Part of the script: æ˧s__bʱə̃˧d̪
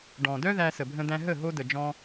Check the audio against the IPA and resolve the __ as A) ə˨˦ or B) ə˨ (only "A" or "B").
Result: B